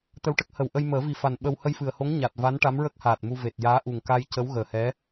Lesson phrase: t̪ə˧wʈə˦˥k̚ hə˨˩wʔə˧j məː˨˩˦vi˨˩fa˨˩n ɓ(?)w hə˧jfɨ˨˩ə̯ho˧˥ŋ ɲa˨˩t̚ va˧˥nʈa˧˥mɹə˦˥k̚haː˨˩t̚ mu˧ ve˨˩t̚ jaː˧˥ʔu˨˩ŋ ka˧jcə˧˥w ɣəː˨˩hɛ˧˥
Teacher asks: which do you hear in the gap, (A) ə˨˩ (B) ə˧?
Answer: B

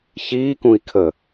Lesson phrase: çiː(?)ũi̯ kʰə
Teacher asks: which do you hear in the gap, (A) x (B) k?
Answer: B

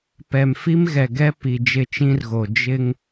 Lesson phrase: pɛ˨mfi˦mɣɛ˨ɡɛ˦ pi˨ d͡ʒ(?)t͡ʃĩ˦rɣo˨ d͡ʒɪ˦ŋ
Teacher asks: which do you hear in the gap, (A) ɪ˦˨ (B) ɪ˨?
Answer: A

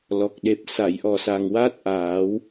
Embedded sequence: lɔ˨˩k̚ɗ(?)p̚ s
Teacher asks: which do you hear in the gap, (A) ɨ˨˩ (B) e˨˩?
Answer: B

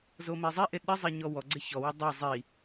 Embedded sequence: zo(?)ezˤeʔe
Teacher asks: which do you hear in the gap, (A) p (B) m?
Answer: B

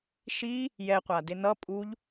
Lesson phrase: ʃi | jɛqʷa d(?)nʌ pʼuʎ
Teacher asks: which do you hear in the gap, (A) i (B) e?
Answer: B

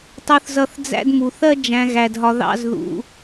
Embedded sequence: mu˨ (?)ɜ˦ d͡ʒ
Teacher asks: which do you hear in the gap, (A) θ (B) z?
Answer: A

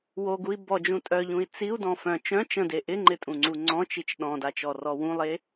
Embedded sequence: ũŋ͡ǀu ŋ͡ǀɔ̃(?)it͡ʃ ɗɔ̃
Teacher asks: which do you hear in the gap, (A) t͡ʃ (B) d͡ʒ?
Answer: A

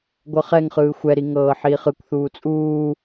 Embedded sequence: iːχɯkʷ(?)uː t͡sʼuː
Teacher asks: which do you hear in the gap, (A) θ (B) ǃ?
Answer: A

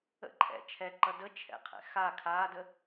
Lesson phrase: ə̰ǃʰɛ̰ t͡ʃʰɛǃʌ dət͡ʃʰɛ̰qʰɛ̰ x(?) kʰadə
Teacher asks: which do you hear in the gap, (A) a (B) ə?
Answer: A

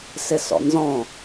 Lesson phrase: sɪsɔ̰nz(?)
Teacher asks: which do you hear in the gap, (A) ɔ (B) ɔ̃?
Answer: B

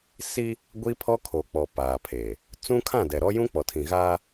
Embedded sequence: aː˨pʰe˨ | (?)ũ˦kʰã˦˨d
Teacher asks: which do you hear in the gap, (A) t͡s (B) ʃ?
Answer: A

